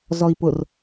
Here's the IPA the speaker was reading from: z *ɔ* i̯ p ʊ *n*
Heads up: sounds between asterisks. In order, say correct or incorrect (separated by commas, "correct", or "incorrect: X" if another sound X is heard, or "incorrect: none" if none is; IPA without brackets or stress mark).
correct, incorrect: r